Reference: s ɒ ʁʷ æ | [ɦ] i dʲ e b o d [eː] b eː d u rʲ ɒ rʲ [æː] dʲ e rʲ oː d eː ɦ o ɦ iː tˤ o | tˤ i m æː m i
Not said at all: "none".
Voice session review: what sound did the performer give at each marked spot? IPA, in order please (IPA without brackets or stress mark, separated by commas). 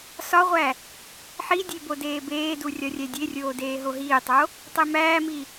ħ, eː, æ